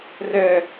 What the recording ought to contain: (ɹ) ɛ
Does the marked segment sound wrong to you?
yes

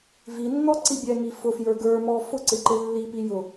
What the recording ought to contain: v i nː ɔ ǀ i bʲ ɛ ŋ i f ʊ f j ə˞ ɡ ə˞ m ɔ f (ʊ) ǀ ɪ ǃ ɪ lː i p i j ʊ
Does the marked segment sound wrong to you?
no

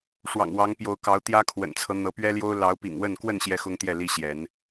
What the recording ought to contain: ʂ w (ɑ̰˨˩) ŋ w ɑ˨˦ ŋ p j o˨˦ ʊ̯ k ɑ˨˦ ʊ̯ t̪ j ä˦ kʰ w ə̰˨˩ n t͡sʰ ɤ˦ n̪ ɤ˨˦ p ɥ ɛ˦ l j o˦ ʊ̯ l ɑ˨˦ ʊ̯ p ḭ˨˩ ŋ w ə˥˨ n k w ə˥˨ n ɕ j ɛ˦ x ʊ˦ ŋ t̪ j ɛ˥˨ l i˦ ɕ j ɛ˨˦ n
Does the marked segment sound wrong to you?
no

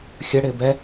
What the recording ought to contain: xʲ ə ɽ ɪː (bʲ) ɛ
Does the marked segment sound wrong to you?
yes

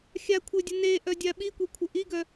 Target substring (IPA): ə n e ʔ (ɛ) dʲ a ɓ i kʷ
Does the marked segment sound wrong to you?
yes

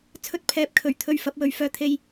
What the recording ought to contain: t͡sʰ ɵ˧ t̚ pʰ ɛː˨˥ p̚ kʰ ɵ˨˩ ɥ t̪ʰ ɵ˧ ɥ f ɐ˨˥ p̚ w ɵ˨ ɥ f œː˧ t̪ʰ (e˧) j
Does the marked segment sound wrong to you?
no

